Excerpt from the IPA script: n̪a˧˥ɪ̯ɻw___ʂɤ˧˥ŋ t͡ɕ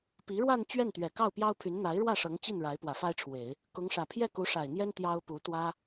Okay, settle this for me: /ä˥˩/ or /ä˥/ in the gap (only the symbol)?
ä˥˩